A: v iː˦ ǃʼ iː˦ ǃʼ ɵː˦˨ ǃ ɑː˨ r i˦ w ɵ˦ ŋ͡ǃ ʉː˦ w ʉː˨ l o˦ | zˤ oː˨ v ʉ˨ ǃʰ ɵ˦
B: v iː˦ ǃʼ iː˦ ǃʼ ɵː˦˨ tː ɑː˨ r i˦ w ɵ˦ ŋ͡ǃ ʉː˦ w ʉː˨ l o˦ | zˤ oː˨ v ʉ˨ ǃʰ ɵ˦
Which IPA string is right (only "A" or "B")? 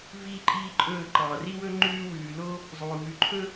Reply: A